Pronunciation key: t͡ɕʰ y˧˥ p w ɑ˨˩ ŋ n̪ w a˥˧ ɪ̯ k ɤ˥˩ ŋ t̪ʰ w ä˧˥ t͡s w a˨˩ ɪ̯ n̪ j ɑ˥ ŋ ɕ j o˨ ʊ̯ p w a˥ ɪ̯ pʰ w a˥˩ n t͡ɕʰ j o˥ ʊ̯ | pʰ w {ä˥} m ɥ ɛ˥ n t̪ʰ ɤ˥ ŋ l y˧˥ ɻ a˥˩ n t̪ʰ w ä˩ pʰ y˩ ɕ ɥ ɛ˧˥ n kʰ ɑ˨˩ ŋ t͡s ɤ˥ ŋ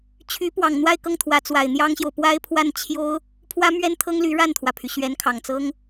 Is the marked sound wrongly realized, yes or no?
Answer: no